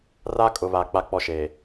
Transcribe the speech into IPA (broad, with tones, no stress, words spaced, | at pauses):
ra˦kʼʊ˨βa˨ k͡pa˦k͡pɔ˦ʃeː˨